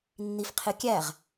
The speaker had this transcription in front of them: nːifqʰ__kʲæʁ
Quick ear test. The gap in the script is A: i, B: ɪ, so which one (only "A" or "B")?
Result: B